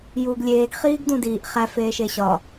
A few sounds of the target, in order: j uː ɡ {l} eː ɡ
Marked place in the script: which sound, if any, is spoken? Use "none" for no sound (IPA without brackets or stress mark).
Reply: lʲ